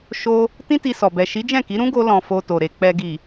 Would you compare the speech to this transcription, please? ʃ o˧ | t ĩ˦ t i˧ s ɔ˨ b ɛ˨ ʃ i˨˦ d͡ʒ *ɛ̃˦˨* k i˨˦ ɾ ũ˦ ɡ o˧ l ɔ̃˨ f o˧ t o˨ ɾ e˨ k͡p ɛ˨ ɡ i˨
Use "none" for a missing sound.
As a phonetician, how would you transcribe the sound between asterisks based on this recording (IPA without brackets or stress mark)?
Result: ɛ̃˦˨